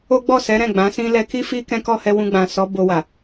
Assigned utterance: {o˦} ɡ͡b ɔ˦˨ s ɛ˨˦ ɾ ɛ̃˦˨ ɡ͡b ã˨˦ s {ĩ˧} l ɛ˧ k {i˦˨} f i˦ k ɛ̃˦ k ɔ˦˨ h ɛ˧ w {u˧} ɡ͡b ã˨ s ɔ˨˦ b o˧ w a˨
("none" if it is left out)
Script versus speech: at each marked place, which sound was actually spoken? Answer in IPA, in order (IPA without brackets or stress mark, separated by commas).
o˦, ĩ˦, i˦, ũ˧